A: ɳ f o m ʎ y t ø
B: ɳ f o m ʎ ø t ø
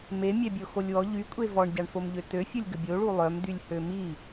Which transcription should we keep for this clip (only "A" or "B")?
B